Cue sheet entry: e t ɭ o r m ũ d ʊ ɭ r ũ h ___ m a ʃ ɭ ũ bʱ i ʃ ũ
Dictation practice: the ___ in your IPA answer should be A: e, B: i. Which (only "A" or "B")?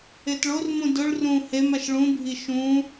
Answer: A